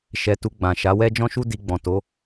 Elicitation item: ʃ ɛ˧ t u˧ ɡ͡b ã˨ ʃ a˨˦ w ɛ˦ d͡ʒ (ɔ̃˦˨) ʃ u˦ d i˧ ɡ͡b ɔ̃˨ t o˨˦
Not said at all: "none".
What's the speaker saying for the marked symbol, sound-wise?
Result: ɔ̃˦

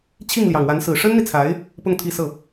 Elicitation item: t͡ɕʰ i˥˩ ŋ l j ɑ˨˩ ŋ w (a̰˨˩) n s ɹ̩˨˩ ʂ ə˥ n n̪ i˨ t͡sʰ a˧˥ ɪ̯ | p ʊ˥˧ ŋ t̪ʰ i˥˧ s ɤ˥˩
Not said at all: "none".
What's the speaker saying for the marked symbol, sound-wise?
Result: a˧˥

